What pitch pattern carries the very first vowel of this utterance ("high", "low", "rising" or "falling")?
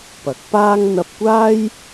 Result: rising